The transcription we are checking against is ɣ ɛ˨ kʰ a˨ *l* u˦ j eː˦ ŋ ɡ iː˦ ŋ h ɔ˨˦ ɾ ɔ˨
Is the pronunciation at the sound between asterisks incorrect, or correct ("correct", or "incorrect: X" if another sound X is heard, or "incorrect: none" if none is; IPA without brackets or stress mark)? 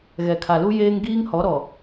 correct